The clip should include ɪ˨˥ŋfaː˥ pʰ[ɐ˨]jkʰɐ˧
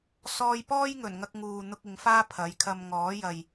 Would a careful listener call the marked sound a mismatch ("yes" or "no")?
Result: yes